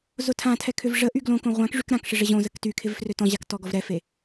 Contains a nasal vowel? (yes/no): yes